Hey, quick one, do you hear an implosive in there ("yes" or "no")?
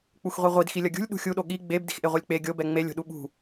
yes